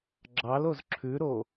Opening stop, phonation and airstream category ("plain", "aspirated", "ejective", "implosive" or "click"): click